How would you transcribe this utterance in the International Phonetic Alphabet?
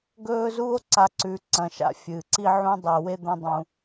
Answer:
ɡɵː˥zu˥o̯ ǀa˦ǀʉ˨ǀɐ̃˨ʃa̰˦ fʲɨː˩ǀi˥ʕũ˥dˤe˨ we˥d̪ɐ̃˦dˤũ˩

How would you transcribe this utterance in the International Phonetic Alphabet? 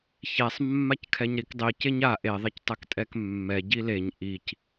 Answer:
çɛsˤmːackʰɛɲɾik dˤi ceɲa ʔeðˤectˤɛk tʼɛkmːɛ ɟileɲ ʔic

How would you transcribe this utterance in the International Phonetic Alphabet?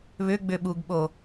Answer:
βʏɡ͡bʏɓuɡɓo

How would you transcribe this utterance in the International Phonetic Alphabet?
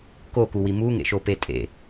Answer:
kokuwi muŋḛʃope tʼḛ

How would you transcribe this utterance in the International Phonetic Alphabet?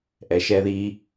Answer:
ʔɛ˨ʃɛ˧ði˧

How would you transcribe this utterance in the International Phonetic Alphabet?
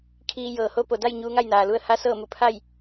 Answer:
kʰiː˧jɤː˩ ho˧˥ po˩da˥˨j ɲuː˧ŋa˥˨jnaː˩lu˧ə̯ ha˧˥sɤː˥˨mu˧˩ pʰa˥˨j

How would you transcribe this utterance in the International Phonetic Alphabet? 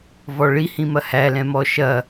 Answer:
vɔɭihĩ mɐhæ lɛ̃mɔʃɐ

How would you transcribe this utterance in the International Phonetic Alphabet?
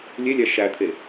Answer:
lʲelʲæ ʃæt̪ʰe

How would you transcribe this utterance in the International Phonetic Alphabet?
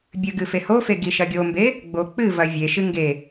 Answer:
bʲɨɡɨ fehofe ɡiʃɐɡʲombe | ɡ͡bok͡pɨvɐ vʲeʃɨ ŋɡe

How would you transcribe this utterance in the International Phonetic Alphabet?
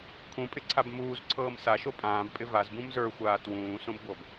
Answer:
kʰũpʼɪǀʰab muːzǀʰɤːm saʃo pʼãːbpʼɪ vazbũm zə˞xʷaː twũːsõbɡʷɤb

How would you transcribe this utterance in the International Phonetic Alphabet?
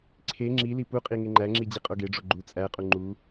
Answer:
ǀʰe ŋ͡ǁili puqʼi ŋeŋ͡ǃæŋ͡ǁi d͡ʑiqʼoɡeɖ͡ʐo ɡ͡ǃu t͡sʼæqʼu ŋ͡ǃu

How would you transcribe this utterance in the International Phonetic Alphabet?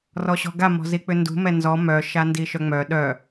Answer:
rɔɕɔ̤ɡa mɔ̤zik͡pʏndṳ mɛnzɔ mœ ʃandiʃœŋ͡mœ ɗœ

